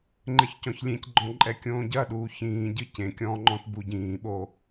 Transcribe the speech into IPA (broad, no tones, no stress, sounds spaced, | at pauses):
ŋ͡ǃ ɘ ç c ɔ̃ ç lʲ ẽ c ɡ͡ǃ ɔ̃ ǃʼ ɛ kʲ õː ɟ ɐ ɗ uː ç ĩː ɟ ɨ c ẽ kʲ ɔ̃ː ŋ͡ǃ ɔ̃ t b u ɟ ĩː ɓ o